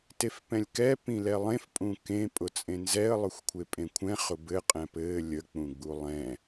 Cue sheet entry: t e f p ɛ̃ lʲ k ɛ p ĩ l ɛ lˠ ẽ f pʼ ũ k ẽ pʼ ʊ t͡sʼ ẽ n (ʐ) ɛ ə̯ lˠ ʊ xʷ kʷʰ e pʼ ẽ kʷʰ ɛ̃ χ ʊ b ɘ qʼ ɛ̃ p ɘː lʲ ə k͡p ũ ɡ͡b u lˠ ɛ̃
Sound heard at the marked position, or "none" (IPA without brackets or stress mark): z